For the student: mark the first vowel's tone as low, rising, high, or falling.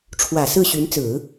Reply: low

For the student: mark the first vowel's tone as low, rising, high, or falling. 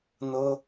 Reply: high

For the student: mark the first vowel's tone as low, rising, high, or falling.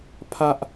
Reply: high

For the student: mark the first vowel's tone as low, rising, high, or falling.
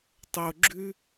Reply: low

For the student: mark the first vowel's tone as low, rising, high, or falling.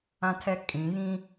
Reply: high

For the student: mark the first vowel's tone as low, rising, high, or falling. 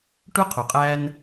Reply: high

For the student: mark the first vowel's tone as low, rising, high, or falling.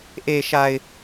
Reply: low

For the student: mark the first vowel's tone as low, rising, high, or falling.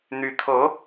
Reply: rising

